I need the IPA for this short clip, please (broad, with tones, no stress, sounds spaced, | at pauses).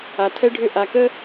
a˨ tʰ ɛ˦ ɖʱ ʏ˦˨ ʔ a˨ k ə˦